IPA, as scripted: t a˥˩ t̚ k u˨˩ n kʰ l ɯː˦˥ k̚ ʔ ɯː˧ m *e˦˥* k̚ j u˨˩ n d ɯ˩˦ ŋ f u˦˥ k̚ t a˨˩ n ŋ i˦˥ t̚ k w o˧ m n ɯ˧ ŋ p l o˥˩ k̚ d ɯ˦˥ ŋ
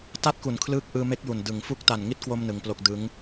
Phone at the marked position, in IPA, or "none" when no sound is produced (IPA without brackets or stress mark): e˦˥